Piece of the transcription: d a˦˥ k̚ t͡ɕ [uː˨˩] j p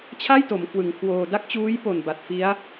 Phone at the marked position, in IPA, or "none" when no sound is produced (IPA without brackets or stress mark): uː˦˥